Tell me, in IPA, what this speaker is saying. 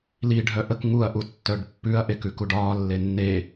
l i ɖʱ œ ʔ ə k ŋ u ɐ̯ ʔ u tː œ ɖ pː ʉ ɐ̯ ʔ e k ʉ k u ɖ ɒː lː e nː e

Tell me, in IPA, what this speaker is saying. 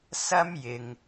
s ɐ˥ m j ɪ˨ ŋ

